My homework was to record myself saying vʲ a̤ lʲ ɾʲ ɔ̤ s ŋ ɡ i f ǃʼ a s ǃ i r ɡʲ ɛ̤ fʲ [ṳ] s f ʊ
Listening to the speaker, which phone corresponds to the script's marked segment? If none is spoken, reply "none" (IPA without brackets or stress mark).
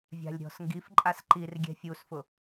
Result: u